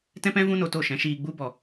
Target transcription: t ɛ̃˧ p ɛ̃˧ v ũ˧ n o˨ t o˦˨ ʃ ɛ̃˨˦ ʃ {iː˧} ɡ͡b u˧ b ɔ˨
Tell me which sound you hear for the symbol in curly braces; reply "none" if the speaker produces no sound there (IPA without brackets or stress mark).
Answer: iː˧